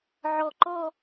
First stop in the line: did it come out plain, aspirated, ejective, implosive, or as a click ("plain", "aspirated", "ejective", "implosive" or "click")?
click